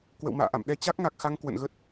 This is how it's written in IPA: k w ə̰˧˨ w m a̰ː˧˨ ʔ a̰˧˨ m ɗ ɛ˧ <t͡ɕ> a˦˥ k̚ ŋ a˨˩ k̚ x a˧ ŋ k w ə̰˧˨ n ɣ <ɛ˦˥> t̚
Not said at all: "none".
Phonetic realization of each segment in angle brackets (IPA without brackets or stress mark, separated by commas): t͡ɕ, ə˦˥